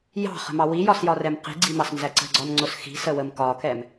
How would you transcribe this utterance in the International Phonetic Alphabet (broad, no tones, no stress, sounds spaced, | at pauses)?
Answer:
j ɑ̤ χ ə̤ m ɑ w i j ɒ s j ɒ r ɛ m q i̤ ɡ͡ǀ i m ɑ s n z æ ǀ ə̤ ɡ͡ǀ ɒ n ŋ͡ǀ ʊ s x i̤ s ə w ə m k ɒ k ɛ m